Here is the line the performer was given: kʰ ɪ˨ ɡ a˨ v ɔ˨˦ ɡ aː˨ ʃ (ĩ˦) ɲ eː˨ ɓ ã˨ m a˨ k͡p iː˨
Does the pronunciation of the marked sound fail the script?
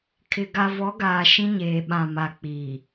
no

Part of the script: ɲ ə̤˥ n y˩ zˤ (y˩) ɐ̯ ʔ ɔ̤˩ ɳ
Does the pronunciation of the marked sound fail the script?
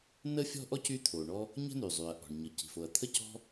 no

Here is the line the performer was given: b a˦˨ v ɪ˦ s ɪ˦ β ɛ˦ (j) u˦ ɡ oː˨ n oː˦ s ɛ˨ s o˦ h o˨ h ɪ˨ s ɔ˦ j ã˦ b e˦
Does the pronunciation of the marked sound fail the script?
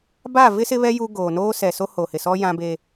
no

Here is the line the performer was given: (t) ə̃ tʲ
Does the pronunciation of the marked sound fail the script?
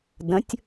yes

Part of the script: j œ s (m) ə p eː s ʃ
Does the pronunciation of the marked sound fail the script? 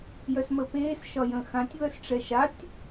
no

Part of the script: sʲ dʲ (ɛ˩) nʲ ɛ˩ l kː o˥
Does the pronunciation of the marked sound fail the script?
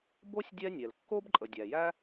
yes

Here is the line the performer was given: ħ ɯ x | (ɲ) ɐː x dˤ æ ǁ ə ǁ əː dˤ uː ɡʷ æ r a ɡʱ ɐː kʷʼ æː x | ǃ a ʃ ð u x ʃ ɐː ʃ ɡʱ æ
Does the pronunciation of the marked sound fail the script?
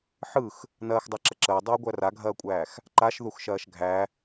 yes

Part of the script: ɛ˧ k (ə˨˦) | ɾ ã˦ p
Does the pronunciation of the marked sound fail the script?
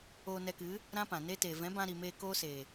yes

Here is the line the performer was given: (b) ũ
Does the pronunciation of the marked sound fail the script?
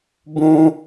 no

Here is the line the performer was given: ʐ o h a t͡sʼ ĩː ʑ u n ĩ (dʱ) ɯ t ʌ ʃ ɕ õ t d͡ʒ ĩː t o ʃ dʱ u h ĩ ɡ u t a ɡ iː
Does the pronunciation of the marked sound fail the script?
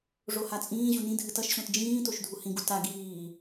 no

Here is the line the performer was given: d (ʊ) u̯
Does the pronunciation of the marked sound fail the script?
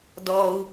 yes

